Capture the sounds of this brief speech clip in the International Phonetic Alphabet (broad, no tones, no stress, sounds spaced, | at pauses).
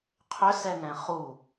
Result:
qʰ ʏ s ɛ ŋ ɛ̃ χ u